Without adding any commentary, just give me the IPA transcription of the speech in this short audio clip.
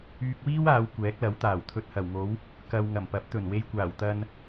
yː˧ k̚ w iː˥ w aː˨˧ w kʷ ɛː˨˥ k̚ l ɐ˨˥ w t̪ aː˨˩ w t̪ʰ ɵ˨ t̚ h ɐ˨˩ w ŋ o˨˥ w | k ɐ˨ w ŋ ɐ˨˩ m p ɐ˨˥ p̚ t̪ ɵ˨˩ n w e˧ j kʷ aː˨˩ w t̪ ɐ˧ n

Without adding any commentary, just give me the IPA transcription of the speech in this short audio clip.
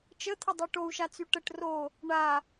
t͡ʃ ə t̪ʰ ə dˤ y ʈ o u̯ ʃ a t͡s y ʈ ə ʈ r o | ɳ a

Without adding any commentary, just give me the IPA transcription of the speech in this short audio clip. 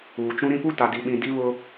uː˨ t͡ʃ ũ˦ ɾ ĩ˦ p u˦ t a˨ d i˨ ɓ ĩ˨ d i˦ β ʊ˦

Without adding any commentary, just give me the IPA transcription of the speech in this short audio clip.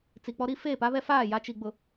t͡s i˨ k͡p ɔ˦ ɾ i˦ f eː˦˨ p a˦ β ɛ˦ f aː˦˨ j a˦ t͡ʃ i˨ ɡ͡b ʊ˨

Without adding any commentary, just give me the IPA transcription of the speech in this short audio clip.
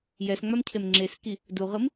j ɛ s ŋ͡m a m cʰ e m ŋ͡ǁ e s k i | d u ʁ ɯ m

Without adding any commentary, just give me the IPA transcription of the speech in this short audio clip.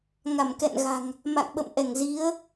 ŋ a˧˩ m k ɛ̰˧˨ n ɣ a̤˨˩ ŋ | m a̰˧˨ ŋ ɓ ə̰˧˨ m ʔ ɛ˧˩ ŋ z i˨˦ ə̯

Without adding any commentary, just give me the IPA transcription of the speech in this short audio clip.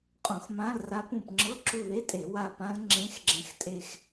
qʼ õ˧˩˧ x m ã˧˥˧ l r a˦˥ p ũ˦˨ p ŋ͡ǁ ɤ˧˥˧ ǁ u˦˨ ð e˧˥˧ tʼ e˧˩˧ w a˦˨ p ã˦˥ l ŋ͡ǁ ẽ˧˥˧ x ɡ͡ǁ ɛ̃˦˨ x tʼ e˦˨ x

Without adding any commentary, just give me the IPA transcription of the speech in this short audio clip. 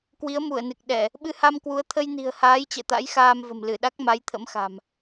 k w i˨˦ ə̯ m u˧˩ ə̯ n ɨ˨˩ k̚ ɗ ɛ˧˩˨ | ɓ ɨ˧ h a˧ m k w u˨˦ ə̯ t̪ʰ ə˧ j n i̤˨˩ ə̯ h aː˨˦ j t͡ɕ ɛ̰˧˨ t̪ a̰˧˥ j x aː˧ m v ə̤˨˩ m l ɨ˧˩ ɗ a˦˥ k̚ m a˨˦ j t̪ʰ ə̰˧˥ m x a̤˨˩ m

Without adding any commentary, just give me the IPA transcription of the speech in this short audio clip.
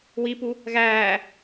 w i p u | ɣ æː

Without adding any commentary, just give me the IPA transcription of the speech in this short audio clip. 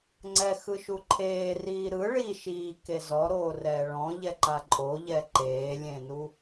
ŋ͡ǀ ɛ x ɯ ʃ u ǃʰ eː r iː ɾ ɯ ɭ i ʃ iː k e z ɔ ɾ oː r ɛː ɭ ɔ̃ ʎ ɛ ǃ a ǃʼ o ʎ ɛ ǃ eː lʲ ẽ n u

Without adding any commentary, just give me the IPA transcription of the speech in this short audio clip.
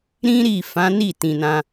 ɾ ĩ˦ ɾ i˦˨ f ã˨˦ n i˦˨ t ĩ˨ n ã˧

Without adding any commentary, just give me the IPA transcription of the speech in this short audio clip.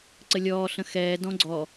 ǀ ə lʲ ɔː ɬ ə̃ x ɛː d ɔ̃ ɡ͡ǀ ɔ

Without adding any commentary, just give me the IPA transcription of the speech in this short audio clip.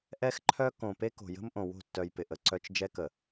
ʔ ɛ˦ x ǃʰ œ˦ k õ˨ p e˦ k o̤˨ j ə̤˦ m ʔ õ˨ w o̤˦˨ tː œ˨ j p ɪ˨ ʔ ə˨ ǀ œ˦ t͡ʃ d͡ʒ ɛ˦ k ə˨

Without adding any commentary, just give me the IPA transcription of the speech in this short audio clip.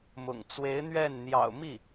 m ʊ̰˨˩ ŋ t͡s w e˧˥ ɪ̯ n̪ ɥ ɛ˥˩ n n̪ j ɑ̰˨˩ ʊ̯ m i˥˩

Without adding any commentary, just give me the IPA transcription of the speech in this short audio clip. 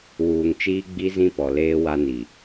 w uː˨ ŋ t͡ʃ iː˦ ɡ͡b i˦ z ĩ˦ p ɔ˨ l eː˦ w a˦ n i˨

